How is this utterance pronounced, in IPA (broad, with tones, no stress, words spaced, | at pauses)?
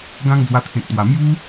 ɡã˦ŋd͡zwa˧t̪ʰẽ˨k̚t̪wa˨˩ mju˦